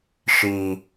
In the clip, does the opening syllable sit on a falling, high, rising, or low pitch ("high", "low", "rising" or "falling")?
low